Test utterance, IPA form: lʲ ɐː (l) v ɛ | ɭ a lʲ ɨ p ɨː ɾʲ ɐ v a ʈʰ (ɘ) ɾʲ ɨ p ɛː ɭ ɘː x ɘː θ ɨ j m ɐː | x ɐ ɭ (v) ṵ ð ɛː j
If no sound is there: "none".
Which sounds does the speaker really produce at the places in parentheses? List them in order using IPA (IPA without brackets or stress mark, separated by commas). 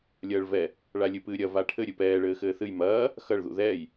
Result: ɭ, ɘ, ð